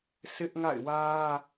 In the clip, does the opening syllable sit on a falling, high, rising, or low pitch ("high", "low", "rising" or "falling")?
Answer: high